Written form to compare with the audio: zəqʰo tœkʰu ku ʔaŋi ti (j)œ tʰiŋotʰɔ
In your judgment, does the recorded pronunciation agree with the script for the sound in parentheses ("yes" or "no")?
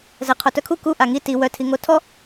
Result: no